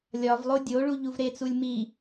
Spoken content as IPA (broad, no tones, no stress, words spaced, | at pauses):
lʲɒvlˠo dʲoɭu ʎuvɾet͡sulʲ mi